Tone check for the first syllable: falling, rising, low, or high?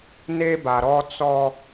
high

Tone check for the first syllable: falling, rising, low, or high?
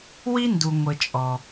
high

